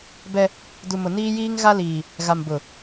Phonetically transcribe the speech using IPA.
bɛ˦ | du˨mʊ˨ niː˦jiː˦ŋ ɣa˦liː˨ | ɣa˨mbʊ˨

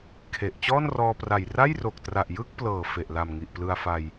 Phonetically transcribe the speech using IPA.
kʰe˨˩ʔ t͡ɕɔː˥˩nrɔː˧pra˨˩j ra˥˩jro˨˩k̚tra˨˩ʔ jɯ˥˩k̚plɤː˨˩ fe˨˩ʔla˨˩m ŋi˨˩ʔplɯ˧a̯fa˧j

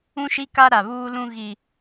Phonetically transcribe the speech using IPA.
ũ˦ʃi˦ka˦ ɾa˨βuː˦lũ˦ ɣi˦

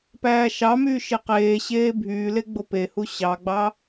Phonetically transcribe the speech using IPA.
pæːʃɑmyː ʃeqeːɕeː bʱyːle ɡ͡bopehu ɕɑɡ͡bɑ

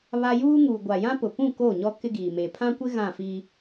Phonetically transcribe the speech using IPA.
βa˦ juː˦ŋu˨ ɡʷa˨ jã˦pʊ˨pũ˦˨ ko˦˨ɲɔ˦ kɪ˦ɡiː˨ me˨pʰã˦kʷɪ˦ ɣã˦˨fiː˦

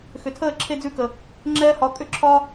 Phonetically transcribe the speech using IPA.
xʏ˨tʰəː˦˨ ǁʰe˦d͡zʉ˦˨kə˨ | ŋ͡ǁɛː˦hɒ˨˦ kʼʏ˦˨ ǁʰɒ˦

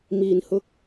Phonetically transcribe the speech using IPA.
miː˨˩nhʊ˧k̚

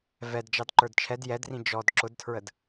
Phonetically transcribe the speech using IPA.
vɛdd͡ʒɑd ǃə˞dt͡ʃʰɛd jɛdrĩ d͡ʒɔd ǁʊdtʰɹəd

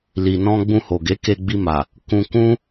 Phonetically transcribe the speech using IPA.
li˨nɔ̃˧ ɡ͡bũ˧ho˨ɡe˨˦ ke˧ɡ͡bi˧ma˨ | kũ˧kũ˦

